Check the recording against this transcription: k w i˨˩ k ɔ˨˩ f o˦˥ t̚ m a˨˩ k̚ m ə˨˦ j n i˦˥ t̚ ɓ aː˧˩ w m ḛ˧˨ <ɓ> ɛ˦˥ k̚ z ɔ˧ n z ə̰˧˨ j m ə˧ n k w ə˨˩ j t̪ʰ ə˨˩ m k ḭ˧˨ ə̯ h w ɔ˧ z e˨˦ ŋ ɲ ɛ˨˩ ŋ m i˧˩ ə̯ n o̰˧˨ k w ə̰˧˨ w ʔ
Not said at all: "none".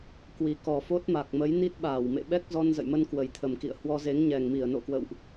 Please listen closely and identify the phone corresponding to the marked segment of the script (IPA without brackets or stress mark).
ɓ